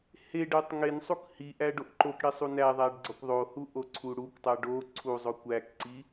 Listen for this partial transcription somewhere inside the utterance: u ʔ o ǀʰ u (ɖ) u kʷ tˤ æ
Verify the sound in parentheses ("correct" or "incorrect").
incorrect